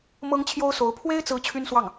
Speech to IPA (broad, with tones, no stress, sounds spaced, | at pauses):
m ɤ˥ ŋ t͡ɕʰ j o˥ ʊ̯ s o˧˥ ʊ̯ pʰ w e˥ ɪ̯ t͡s ɹ̩˧˥ t͡ɕʰ y˥ n s w ɑ˥˩ ŋ